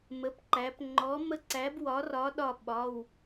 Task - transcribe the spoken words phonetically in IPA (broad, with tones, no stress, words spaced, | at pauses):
mə˩˧˩pǃæ˩˧p ŋ͡ǃɔ˨˥mə˦˥ǀæ˨˥bwɒ˨˥ rɒ˨˥ɗɒ˧˩ ɓɒ˩˧˩w